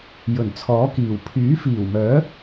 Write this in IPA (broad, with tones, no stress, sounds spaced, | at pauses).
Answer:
j ɵ˨˩ n t͡sʰ ɔː˨˥ k iː˨˩ w pʰ yː˨˥ f iː˨˩ w m œː˨˥